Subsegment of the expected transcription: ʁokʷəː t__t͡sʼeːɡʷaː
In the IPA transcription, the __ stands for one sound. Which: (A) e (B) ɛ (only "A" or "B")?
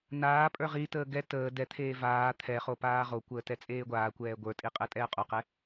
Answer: B